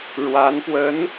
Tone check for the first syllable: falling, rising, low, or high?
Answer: rising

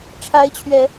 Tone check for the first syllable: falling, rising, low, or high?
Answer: rising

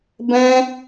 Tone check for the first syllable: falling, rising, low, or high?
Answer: high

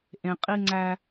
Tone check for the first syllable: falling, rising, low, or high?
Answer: low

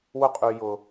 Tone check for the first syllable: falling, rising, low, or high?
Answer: high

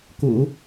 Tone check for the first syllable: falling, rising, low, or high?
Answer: low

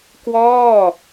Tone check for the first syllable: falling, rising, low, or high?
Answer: falling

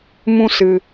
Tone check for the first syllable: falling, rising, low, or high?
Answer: high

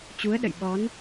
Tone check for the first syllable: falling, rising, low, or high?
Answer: rising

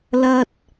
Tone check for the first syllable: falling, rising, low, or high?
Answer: high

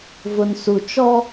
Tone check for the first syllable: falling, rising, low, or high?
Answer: low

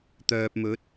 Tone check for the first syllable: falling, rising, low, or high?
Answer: low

